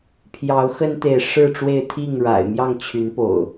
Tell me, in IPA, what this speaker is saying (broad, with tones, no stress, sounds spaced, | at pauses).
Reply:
pʰ j ɑ˨˦ ʊ̯ x ə˦ n t̪ e˨ ɪ̯ ʂ ɻ̩˥˨ ʈ͡ʂ w e˥˨ ɪ̯ t̪ʰ i˥˨ ŋ ɻ a̰˨˩ ɪ̯ m j ɑ˥˨ ŋ t͡ɕʰ y˨˦ n p o̰˨˩ ʊ̯